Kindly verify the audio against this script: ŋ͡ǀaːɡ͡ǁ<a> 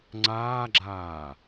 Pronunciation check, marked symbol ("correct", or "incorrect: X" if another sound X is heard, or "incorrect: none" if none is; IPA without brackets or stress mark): incorrect: aː